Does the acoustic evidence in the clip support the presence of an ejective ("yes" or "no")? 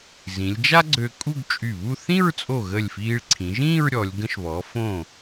yes